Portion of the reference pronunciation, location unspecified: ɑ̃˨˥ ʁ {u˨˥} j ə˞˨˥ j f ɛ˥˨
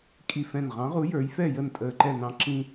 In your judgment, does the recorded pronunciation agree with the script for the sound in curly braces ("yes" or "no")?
yes